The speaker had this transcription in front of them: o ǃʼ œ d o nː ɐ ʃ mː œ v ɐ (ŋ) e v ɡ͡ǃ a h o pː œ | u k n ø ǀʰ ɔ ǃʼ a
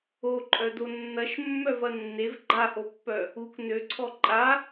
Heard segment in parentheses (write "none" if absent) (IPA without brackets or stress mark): nː